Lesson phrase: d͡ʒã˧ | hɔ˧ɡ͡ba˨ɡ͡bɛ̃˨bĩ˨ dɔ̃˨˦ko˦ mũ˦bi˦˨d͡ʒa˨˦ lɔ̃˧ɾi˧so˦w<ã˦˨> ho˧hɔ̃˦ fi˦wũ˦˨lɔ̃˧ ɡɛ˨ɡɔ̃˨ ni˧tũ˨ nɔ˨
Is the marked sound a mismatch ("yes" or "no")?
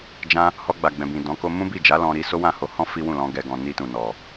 no